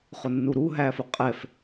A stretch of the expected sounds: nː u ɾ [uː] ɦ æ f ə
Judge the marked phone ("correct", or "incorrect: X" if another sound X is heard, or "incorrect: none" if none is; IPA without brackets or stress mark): incorrect: u